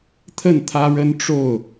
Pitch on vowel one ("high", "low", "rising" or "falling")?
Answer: falling